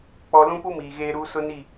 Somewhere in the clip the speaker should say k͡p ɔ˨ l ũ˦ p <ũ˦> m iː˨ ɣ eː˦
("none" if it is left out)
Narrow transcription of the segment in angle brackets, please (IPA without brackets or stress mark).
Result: u˦